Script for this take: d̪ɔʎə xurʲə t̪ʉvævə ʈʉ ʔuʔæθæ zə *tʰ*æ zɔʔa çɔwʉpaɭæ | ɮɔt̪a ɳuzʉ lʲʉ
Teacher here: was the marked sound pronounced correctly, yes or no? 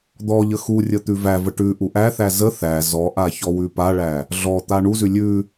no